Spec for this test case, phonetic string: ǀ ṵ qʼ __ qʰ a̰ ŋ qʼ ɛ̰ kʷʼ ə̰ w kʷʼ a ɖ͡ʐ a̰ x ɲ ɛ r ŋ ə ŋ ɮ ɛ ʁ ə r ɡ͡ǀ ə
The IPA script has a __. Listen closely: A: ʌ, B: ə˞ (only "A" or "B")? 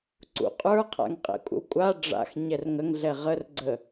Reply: B